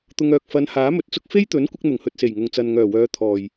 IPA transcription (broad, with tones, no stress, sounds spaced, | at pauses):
t̪ ʊ˧ ŋ œː˨ k̚ f ɐ˨˧ n h aː˨˥ m ɵ˨˥ t̚ t͡s ʊ˥ k̚ f e˥ j t̪ ɵ˨˥ n kʷ ɪ˧ k̚ n̪ ʊ˨˩ ŋ h ɵ˨ t̚ s e˨˩ j ŋ ʊ˨ ŋ t͡s ɐ˨ n ŋ œː˨˩ w œː˨˧ t̪ʰ ɔː˨˩ j